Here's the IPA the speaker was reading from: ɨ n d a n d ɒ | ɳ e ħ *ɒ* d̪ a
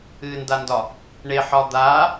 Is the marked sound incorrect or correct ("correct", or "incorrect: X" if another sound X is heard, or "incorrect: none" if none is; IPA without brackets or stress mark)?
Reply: correct